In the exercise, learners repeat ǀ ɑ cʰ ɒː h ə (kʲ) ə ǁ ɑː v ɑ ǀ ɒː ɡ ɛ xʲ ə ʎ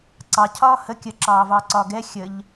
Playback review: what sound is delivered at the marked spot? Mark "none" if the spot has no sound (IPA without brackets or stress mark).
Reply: kʲ